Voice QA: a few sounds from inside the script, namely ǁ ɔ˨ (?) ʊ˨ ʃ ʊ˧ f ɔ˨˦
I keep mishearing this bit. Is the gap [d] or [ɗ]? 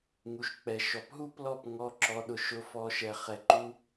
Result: ɗ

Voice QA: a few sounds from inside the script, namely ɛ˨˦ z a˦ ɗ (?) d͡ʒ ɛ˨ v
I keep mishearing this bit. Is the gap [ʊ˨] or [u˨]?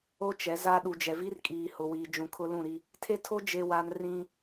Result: u˨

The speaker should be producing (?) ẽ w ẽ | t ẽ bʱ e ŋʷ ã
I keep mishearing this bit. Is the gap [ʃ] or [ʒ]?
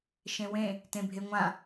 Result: ʃ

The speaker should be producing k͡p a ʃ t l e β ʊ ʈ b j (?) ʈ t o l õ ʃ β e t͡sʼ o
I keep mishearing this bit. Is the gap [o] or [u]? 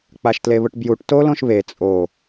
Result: u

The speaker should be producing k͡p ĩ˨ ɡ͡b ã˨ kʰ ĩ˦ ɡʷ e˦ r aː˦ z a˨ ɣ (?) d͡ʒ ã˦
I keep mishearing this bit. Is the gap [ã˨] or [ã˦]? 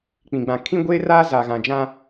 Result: ã˨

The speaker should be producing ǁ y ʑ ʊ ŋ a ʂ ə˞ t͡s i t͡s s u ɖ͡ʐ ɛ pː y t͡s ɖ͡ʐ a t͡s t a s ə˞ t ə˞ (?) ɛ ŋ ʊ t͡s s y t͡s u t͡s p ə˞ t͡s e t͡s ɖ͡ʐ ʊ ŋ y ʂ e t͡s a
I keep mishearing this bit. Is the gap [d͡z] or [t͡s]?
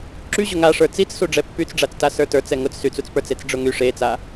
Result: t͡s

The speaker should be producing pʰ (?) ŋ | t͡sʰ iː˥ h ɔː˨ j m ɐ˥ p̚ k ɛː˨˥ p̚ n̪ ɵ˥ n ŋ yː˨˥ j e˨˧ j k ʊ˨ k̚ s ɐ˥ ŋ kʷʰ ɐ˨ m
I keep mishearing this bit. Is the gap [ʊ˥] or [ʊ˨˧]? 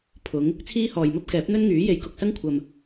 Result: ʊ˨˧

